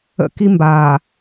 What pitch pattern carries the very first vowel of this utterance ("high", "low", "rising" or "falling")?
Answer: high